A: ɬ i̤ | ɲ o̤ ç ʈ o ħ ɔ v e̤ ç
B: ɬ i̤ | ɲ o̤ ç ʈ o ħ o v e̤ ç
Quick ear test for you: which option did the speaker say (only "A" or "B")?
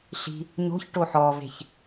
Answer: A